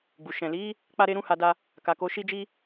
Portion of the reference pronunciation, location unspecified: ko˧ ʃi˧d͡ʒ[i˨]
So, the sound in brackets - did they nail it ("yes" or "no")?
no